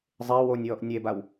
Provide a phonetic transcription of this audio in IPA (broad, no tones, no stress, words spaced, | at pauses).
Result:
zˤe wonʲwɔʔ nʲebaw